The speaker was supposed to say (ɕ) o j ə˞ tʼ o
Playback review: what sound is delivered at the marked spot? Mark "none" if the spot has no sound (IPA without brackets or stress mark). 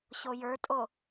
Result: ɕ